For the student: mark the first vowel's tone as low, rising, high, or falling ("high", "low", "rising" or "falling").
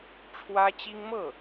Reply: high